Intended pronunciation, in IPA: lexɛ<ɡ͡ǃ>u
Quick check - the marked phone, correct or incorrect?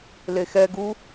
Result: incorrect: ɡ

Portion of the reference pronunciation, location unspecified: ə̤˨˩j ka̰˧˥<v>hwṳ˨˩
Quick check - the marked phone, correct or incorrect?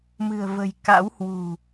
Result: incorrect: w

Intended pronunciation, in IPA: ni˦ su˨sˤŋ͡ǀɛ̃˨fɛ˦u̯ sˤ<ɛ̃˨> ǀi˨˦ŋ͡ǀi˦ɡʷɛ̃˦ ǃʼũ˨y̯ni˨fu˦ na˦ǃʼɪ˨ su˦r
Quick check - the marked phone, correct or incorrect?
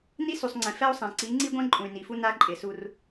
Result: correct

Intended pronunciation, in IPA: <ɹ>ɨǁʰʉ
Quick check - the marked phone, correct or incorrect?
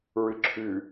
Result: correct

